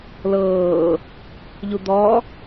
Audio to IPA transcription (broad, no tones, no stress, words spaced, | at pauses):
lɤː | ʎud̪ɔ